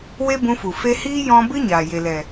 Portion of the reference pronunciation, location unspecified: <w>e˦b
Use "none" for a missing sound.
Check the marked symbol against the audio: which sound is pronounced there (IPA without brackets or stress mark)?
w